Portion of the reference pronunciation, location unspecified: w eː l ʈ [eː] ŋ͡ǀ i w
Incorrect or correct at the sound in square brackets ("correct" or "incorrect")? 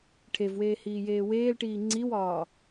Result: incorrect